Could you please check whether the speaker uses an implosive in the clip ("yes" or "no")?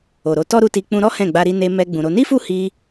no